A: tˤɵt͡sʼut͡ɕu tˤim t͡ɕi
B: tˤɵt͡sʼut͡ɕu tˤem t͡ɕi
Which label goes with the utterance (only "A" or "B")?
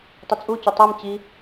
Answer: B